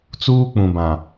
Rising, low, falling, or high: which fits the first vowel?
high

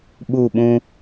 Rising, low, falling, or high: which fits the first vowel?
falling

